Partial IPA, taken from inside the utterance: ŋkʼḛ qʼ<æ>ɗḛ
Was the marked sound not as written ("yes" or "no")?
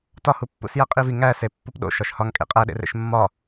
no